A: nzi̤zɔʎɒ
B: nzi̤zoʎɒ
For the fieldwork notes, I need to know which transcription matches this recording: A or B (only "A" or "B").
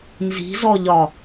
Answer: A